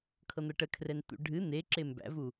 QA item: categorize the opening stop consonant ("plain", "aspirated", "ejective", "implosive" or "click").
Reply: aspirated